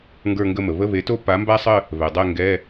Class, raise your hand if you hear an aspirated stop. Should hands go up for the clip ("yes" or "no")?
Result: no